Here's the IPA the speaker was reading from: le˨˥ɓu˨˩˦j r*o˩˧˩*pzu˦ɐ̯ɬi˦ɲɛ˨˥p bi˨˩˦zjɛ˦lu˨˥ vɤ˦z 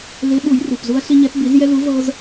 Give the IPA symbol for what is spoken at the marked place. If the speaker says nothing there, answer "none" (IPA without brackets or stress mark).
u˩˧˩